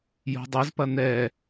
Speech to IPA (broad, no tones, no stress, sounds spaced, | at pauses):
j o̤ dˤ e z p ɐ n̪ ɛ